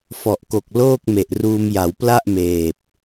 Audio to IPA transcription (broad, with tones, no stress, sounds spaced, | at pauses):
f ɔ˨˩ ʔ k o˨˩ k̚ l oː˥˩ k̚ m e˨˩ ʔ r uː˧ m j a˩˦ w p l a˥˩ ʔ m eː˨˩ p̚